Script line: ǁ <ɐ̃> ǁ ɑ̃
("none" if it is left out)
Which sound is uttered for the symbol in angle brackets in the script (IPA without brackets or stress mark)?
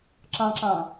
ɑ̃